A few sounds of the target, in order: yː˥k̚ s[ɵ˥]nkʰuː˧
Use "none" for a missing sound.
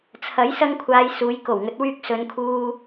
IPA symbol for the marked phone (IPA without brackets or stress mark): ɵ˨˧